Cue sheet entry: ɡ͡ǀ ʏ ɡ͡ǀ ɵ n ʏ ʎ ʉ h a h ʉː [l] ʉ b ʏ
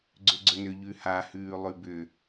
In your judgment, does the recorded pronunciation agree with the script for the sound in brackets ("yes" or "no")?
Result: no